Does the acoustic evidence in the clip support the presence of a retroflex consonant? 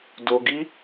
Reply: no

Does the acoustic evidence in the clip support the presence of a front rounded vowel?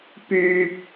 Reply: yes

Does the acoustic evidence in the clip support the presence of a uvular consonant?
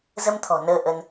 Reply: no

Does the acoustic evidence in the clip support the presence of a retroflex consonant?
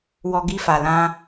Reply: no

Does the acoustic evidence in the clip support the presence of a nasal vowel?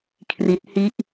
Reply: no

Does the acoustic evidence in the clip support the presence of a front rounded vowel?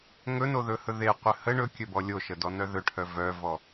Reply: yes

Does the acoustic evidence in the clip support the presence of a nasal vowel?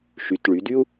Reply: no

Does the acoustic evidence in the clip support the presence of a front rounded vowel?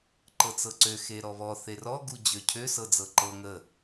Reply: yes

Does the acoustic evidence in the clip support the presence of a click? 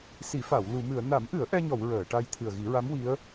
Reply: no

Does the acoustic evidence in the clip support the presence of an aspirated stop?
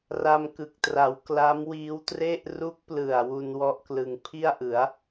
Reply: yes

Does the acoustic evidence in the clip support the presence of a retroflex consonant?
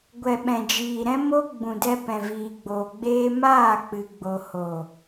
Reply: no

